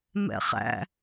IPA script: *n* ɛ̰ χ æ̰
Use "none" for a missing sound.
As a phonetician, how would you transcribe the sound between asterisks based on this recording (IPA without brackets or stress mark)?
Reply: m